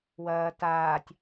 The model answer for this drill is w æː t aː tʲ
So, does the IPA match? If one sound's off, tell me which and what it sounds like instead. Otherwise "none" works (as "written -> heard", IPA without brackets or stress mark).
æː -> ɐː